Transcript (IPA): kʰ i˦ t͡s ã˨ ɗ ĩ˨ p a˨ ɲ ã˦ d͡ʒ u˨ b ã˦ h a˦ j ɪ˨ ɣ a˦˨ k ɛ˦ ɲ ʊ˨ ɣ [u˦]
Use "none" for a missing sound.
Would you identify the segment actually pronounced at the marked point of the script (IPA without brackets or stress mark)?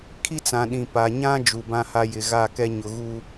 u˦